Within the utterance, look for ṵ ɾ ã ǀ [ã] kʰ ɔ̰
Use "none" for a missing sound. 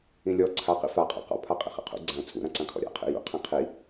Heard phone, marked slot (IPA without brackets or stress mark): ã